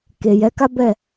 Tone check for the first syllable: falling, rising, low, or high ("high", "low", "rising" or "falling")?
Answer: low